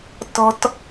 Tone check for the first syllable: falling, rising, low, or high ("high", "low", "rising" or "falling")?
low